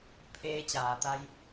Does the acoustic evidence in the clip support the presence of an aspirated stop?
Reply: yes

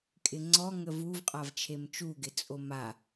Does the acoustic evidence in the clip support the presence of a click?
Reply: yes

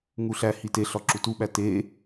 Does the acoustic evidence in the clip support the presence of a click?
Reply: yes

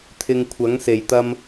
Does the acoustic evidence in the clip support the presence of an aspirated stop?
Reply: yes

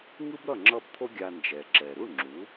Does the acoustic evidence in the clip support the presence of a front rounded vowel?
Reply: no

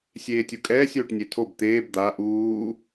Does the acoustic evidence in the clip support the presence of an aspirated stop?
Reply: yes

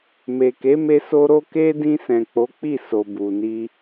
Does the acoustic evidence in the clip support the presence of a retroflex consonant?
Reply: no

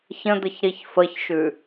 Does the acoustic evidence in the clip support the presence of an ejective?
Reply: no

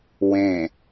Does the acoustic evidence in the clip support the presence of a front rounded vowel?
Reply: no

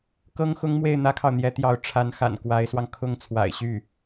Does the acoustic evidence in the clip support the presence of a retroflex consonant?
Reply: yes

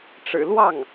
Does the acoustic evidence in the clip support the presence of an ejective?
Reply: no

